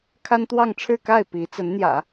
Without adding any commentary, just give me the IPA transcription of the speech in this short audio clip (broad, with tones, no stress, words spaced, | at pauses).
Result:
kʰa˥nt̪wɑ˥˧ŋʈ͡ʂʰɻ̩˥˧ka˥˩ɪ̯ pi˧˥t͡sə˧˥nn̪jä̰˨˩˦